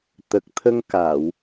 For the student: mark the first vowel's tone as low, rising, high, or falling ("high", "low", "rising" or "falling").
low